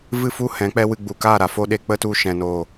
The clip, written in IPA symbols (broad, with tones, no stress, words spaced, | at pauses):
vɨ˦˨fu˦ hɛ̃˨˦k͡pɛ˦wɨ˧ ɡ͡bu˨ka˦˨ ɾa˨fo˦ɗe˧ k͡pə˦tu˧ʃɛ̃˨noː˨